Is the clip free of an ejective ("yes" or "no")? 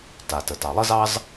yes